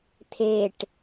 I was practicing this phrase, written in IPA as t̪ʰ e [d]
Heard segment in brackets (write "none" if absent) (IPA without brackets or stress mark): ʈ